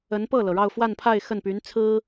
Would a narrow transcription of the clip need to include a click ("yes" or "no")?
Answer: no